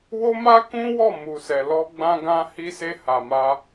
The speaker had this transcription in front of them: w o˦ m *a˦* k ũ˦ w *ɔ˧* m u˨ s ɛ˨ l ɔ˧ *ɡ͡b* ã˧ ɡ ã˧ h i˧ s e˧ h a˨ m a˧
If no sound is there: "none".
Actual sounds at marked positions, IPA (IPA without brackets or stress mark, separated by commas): a˦, ɔ˦˨, ɡ͡b